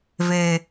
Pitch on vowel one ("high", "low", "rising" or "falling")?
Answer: low